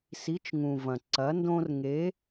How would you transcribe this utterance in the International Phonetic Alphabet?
s i˨˥ t͡ʃ ŋ ũ˩ v ɐ̃˩ ǀ ɐ˨˥ n d õ˦ r ŋ e˨˥

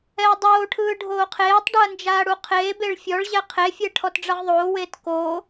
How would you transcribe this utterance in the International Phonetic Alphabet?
ɛ ɐ̯ dˤ oː ʈʰ ɯː ɖʱ oː qʰ eː tˤ ɖ ɯ ɐ̯ n d͡ʒ aː ɽ u qʰ eː b e ɭ fʲ ɔ ɭ ʑ ɛ qʰ e fʲ ɛ ʈʰ ɔ t ɖ͡ʐ ʌ ʁ ðˤ oː w eː t k o

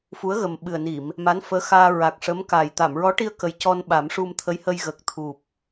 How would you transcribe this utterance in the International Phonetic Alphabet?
f u˧˥ ə̯ ɣ ə˨˩ m ɓ ɨ˨˩ ə̯ n i˨˩˨ m | m a˧˥ n f əː˧˥ x aː˧ ɹ a˨˩ k̚ ʂ ə˧˥ m k a˨˩ j t̪ a˨˩˨ m ɹ ɔ˧˥ ʈ i˧ ə̯ k ə˨˩ j c ɔ˧ n ɓ a˨˩˦ m ʂ u˧ m t̪ʰ ə˧˥ j h ə˧ j ɣ ə˨˩ k̚ t̪ʰ u˨˩ p̚

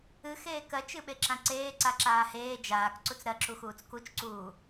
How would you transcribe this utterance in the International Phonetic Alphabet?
ɨ x eː k ɜ t͡ʃ ɨ ɓ e ǁ ã ǀ eː ǀ a ǁ aː h eː d͡ʒ aː k ǀ u t͡s ɾ ɜ ǁ u x uː t͡s k u t͡ʃ ǀ uː

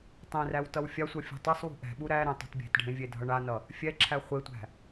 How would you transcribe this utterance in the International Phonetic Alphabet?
tˤ ẽ r æ w t ʌ w fʲ a sʷ ʌ fʲ ṳ tˤ e sˤ w ṳ ʔ ɛ̤ ɓ u ɾ æ ɾ ẽ tˤ ṳ t bʲ e̤ t ɖʱ ẽ vʲ e dʱ ʌ ɳ a n ʌ | fʲ ɛ ǁʰ æ χʷ e tʷ æ̤

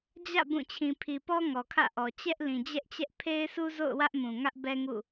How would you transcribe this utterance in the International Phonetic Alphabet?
d͡ʑ ä̰˦˨ b ũ˦˨ t͡ɕʰ ĩ˨ pʰ i˨ p ɔ˦ ŋ ɔ˨ kʰ ä̰˦˨ ʔ ɔ˨ t͡ɕ ɛ˦ ʔ l ĩ˨ d͡ʑ ɛ˦ ʔ t͡ɕ ɛ˦ ʔ pʰ e˦ ɪ̯ s u˦ z o̰˦˨ ʊ̯ w ä˦ ʔ m ũ˨ ŋ ä˦ ʔ b ɛ˦ ŋ ṵ˦˨

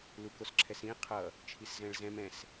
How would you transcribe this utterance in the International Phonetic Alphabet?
l u k o s ǁʰ ɛ s ĩ qʰ ʌ | t͡ʃʰ i s z ɛ̃ ɭ z ɛ̃ m ɛ̃ s

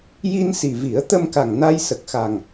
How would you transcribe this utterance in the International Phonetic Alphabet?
j i˧ n s i˨˩ v i˨˩˦ ə̯ t̪ ə˧ m k a˨˩ ŋ n a˧ j s ə˨˩ k̚ x a˨˩ ŋ

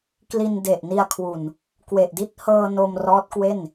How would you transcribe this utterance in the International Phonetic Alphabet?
k l i˧ n d e˨˩ ʔ n i˧ a̯ kʰ w u˨˩ n | k w e˨˩ ʔ d i˥˩ t̚ h ɤː˧ n o˧ m r ɔː˦˥ t̚ k w e˥˩ n

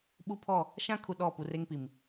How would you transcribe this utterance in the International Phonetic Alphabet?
ɓ u˦ pʰ ɔ˦˨ | ʃ ã˦ kʰ u˨ ɗ ɔ˦˨ p u˨ r e˦ ŋ p i˨ m

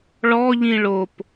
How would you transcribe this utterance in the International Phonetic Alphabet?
ɭ ɔ ʎ ĩ ɭ o p

